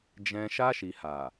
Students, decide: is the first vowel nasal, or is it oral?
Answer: nasal